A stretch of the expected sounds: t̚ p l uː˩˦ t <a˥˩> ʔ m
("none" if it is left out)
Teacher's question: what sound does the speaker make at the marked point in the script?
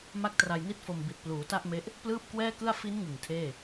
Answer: a˥˩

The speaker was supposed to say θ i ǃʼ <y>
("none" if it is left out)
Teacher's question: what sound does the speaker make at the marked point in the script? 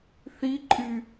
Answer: y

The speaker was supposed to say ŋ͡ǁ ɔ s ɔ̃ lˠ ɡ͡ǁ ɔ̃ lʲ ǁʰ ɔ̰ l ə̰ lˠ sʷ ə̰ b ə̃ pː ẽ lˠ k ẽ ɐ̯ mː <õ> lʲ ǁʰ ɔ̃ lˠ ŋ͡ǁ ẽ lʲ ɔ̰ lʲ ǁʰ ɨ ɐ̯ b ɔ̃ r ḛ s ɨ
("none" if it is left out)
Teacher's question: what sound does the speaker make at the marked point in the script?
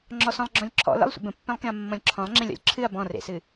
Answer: ɔ̃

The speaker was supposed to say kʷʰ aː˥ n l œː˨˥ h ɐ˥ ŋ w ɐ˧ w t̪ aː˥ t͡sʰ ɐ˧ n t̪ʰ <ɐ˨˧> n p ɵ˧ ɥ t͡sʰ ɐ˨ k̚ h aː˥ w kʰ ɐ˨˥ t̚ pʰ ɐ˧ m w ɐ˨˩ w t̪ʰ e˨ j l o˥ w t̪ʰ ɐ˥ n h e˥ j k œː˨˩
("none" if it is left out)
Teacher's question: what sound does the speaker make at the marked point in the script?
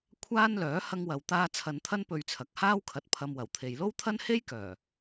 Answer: ɐ˥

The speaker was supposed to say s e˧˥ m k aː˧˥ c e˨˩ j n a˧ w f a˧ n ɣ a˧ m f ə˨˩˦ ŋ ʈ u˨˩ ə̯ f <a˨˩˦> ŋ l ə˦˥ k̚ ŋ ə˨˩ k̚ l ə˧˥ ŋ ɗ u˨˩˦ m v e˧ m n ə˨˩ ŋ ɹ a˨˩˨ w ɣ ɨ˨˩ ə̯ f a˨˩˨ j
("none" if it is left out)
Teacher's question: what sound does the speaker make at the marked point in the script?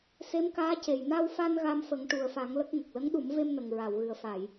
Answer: a˨˩˦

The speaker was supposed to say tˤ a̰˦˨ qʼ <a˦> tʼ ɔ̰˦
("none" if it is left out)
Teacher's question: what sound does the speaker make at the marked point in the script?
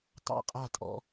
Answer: a˦˨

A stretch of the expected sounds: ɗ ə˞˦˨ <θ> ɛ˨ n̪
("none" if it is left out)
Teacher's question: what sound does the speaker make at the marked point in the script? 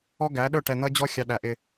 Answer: ʈ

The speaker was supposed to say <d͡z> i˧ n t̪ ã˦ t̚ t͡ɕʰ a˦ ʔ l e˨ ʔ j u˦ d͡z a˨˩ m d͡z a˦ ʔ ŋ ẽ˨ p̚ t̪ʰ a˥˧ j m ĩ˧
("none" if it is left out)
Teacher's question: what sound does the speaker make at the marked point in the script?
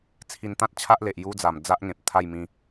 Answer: t͡sʰ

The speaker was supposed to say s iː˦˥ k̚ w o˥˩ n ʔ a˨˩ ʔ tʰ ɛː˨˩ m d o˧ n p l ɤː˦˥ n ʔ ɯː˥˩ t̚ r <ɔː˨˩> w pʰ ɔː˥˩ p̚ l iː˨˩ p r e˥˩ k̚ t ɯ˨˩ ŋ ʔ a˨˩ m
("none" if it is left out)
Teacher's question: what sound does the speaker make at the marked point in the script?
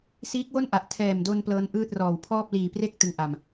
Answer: ɔː˨˩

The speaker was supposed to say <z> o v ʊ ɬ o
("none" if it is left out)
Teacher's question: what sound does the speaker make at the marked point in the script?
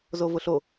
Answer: z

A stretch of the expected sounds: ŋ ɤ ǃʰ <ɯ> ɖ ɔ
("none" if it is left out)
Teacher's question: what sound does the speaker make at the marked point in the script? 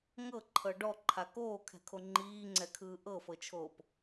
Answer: ɤ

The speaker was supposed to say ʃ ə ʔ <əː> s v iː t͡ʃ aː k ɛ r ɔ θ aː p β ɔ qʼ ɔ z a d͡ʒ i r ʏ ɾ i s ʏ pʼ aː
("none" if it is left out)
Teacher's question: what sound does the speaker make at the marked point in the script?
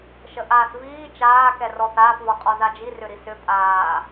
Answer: aː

